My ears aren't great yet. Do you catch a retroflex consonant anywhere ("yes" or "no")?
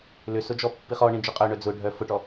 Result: yes